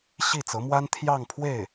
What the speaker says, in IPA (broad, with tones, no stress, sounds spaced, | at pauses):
ɕ i˥˩ t͡s ɤ˧˥ m w a˥ n t̪ʰ j ɑ˥˧ ŋ pʰ w e˥˩ ɪ̯